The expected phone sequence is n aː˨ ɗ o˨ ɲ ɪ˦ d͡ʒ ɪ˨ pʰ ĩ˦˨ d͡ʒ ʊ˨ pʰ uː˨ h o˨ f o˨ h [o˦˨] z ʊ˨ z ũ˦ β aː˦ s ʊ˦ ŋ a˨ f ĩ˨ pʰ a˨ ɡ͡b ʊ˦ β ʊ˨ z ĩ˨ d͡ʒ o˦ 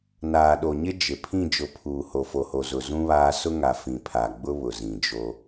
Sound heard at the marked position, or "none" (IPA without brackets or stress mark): o˨